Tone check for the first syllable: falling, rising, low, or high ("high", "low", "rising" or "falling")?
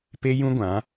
high